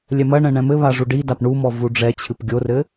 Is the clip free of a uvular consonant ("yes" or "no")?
yes